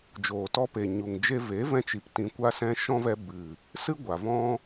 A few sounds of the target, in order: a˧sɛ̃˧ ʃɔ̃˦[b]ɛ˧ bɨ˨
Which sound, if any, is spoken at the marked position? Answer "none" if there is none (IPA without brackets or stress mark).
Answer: v